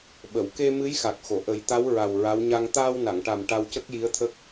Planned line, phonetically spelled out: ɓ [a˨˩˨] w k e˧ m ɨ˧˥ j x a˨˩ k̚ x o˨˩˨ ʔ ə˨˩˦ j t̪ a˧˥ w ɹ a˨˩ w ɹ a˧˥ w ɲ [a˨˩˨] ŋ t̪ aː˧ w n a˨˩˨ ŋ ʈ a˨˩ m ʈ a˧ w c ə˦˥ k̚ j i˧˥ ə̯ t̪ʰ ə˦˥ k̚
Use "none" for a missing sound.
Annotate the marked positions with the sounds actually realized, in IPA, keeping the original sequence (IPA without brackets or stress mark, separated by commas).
ə˨˩˨, a˧